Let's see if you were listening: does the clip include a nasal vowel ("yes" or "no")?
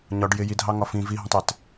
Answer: yes